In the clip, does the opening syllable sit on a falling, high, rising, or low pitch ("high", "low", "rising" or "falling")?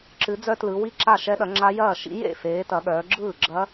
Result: rising